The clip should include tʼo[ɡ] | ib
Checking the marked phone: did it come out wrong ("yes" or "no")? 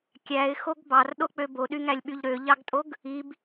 no